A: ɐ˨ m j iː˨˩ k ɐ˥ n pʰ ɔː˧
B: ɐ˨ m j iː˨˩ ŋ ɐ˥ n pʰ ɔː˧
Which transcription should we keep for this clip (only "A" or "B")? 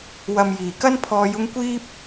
A